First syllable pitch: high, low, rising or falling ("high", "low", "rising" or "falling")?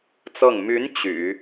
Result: falling